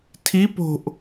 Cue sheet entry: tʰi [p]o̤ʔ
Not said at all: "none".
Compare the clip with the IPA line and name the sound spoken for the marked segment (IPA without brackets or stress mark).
p